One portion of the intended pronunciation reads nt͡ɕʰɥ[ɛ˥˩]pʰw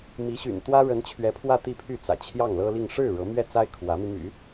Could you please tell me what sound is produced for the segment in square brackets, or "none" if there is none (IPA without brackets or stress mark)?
ɛ˧˥